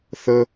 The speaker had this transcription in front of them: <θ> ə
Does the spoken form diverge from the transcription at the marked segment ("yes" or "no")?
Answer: no